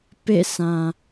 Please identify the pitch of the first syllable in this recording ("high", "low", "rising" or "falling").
falling